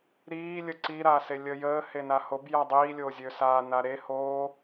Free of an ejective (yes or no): yes